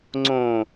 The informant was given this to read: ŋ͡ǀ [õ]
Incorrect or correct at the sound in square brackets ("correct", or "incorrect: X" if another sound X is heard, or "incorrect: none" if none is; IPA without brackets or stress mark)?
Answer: correct